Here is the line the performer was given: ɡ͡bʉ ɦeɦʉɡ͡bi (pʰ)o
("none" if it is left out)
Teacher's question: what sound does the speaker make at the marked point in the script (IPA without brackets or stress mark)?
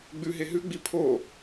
pʰ